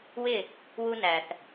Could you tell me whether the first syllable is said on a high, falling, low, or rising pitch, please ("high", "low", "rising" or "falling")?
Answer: falling